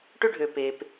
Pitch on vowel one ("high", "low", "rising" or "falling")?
high